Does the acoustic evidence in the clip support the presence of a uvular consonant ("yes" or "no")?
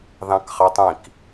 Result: yes